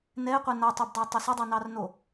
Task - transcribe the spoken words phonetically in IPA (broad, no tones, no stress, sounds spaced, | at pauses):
n ɛ ɪ̯ qʷ ɛ n a tˤ o b dˤ a tˤ ʏ s ʏ dˤ ɛ n ɑ r n o